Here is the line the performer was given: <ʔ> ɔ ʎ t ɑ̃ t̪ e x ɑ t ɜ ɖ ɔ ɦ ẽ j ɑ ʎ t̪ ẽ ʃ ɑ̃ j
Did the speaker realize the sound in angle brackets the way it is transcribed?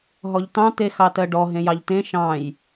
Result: no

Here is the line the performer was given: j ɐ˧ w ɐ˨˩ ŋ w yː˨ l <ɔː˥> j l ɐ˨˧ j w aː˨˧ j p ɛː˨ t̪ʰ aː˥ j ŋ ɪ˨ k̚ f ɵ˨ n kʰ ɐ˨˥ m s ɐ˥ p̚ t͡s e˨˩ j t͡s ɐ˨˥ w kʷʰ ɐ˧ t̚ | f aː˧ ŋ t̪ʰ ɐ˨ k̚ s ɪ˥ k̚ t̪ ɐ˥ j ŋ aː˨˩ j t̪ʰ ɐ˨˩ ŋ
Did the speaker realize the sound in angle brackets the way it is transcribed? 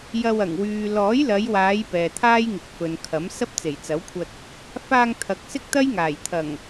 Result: no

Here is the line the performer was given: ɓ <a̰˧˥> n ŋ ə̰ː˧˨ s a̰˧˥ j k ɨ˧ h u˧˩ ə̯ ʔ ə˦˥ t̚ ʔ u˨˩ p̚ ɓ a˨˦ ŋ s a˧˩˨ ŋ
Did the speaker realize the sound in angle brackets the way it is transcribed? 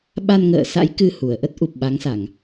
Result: no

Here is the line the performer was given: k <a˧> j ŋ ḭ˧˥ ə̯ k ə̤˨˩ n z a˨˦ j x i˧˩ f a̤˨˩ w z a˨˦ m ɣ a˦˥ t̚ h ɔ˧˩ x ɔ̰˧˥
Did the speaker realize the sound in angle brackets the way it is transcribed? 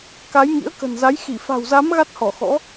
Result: no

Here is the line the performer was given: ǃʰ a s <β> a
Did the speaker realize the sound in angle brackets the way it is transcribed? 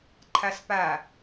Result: no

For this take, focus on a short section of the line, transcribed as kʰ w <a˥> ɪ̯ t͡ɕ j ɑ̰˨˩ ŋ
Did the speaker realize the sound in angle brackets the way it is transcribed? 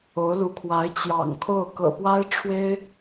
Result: no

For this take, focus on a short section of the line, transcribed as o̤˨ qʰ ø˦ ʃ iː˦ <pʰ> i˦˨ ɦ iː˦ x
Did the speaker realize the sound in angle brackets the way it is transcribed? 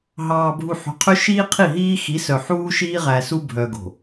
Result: no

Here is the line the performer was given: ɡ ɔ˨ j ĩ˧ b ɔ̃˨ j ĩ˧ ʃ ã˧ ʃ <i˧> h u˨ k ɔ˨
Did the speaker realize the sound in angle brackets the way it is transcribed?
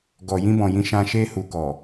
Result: no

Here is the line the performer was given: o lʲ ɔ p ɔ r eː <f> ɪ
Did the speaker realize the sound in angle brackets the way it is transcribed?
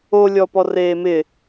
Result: no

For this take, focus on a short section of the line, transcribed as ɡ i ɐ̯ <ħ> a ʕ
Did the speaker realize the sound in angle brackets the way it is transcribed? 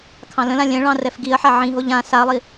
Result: yes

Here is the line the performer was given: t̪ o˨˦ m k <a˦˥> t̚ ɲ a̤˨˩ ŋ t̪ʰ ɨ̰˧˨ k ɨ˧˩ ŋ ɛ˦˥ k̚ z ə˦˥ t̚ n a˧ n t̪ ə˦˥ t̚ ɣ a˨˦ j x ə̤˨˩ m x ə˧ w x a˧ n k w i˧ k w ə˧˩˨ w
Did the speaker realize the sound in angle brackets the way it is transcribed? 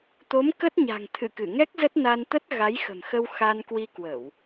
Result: no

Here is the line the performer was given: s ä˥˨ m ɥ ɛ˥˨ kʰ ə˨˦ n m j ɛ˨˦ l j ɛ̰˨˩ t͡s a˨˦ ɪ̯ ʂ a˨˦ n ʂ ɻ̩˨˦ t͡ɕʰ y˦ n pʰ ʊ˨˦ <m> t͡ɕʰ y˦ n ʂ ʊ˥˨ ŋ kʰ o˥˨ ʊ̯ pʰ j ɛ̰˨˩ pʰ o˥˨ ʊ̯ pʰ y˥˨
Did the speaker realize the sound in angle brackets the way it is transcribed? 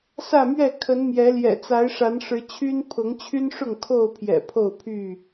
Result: no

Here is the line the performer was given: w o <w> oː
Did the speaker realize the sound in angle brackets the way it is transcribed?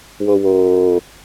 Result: yes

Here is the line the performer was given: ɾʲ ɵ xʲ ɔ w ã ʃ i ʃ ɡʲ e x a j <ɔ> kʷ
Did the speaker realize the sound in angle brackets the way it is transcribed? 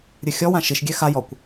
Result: yes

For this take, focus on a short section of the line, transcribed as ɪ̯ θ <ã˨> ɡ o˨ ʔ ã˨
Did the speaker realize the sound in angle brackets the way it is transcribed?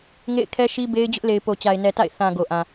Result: yes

